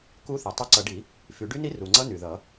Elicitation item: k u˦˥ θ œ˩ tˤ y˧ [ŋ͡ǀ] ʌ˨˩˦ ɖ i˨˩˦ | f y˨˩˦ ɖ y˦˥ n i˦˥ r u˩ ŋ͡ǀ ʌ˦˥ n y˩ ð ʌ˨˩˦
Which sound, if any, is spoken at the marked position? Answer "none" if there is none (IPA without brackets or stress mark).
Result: ǀ